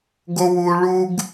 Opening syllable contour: high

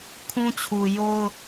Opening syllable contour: high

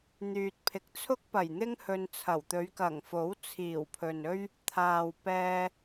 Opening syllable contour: low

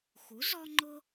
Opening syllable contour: rising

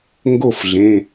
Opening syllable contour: falling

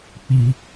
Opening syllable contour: high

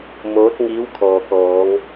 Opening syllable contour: rising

